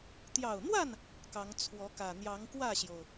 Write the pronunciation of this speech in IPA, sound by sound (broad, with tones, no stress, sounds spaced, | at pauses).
t̪ j ɑ˨˩ ʊ̯ n̪ w a˥˨ n | k ɑ˨˦ ŋ t͡sʰ w ɔ˨˦ k ä˨˩ n̪ j ɑ˨˦ ŋ k w ä˥˨ ɕ j o˩ ʊ̯